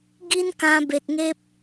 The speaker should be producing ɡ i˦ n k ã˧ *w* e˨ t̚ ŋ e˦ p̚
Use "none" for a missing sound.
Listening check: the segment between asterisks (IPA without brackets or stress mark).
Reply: b